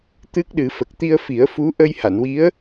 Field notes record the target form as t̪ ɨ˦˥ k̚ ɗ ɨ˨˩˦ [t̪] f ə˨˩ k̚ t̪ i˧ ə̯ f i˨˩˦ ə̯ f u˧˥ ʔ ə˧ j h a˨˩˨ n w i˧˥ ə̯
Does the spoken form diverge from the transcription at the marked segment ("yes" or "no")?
yes